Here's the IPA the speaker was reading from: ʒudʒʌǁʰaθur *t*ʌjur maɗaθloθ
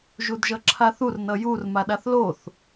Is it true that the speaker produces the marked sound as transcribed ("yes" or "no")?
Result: no